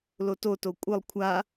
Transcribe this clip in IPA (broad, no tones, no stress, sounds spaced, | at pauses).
l o t o t o kʷʼ ɨ lˠ kʷʰ a